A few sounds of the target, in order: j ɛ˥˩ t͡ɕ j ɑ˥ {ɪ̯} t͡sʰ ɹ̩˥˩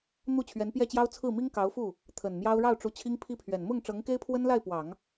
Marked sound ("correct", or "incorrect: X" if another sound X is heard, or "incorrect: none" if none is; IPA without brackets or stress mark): incorrect: ʊ̯